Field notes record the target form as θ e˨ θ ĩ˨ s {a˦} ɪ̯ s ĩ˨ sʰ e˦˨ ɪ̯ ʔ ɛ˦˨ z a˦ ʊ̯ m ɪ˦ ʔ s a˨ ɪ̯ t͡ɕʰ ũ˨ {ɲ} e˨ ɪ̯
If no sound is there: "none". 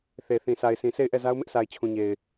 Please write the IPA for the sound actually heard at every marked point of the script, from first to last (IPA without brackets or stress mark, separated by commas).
a˨, ɲ